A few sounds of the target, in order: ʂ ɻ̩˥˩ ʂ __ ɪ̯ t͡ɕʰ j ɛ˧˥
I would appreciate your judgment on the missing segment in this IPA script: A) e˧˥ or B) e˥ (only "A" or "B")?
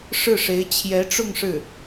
A